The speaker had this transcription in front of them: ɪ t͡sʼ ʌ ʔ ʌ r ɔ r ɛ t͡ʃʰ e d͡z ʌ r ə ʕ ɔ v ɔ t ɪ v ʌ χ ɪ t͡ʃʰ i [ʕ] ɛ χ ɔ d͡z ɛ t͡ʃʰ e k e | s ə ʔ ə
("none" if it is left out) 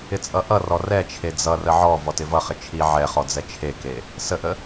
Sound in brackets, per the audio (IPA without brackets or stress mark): ʕ